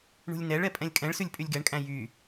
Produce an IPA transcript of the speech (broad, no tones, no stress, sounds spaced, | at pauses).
ɳ ṳ lʲ n ɛ ɭ ɛ pʼ ɛ̃ lʲ kʼ ɛ̃ ɭ s ʉ lʲ pʼ y lʲ ɡ ɛ ɳ kʼ æ̃ j y